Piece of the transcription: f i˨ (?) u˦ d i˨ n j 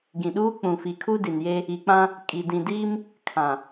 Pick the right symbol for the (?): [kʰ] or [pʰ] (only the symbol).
kʰ